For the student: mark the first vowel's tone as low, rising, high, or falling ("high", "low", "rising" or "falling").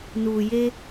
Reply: low